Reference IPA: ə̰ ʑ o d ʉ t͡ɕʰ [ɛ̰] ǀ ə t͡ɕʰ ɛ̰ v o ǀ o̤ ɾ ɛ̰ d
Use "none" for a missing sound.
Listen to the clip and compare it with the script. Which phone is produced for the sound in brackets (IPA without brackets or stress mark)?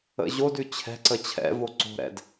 ɛ̤